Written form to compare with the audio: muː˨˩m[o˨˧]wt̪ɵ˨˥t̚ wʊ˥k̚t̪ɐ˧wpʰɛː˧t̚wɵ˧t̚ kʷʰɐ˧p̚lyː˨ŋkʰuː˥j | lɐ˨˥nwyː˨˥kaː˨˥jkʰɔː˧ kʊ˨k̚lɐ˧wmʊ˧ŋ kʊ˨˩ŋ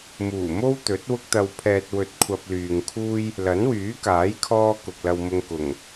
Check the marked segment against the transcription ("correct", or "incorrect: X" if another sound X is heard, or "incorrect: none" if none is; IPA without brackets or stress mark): incorrect: o˥